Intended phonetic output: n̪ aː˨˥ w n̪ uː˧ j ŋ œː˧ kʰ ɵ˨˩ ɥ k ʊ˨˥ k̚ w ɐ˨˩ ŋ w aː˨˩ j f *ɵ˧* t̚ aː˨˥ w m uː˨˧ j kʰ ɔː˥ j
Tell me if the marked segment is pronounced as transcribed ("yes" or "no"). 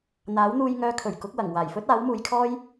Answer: no